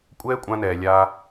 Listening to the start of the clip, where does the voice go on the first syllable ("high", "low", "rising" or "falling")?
high